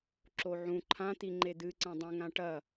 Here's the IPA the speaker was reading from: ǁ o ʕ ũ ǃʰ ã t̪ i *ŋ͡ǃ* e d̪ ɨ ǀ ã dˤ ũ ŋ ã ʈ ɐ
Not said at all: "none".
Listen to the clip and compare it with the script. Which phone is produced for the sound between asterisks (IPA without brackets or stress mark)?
ŋ͡ǃ